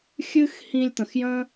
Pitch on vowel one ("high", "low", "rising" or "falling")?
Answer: high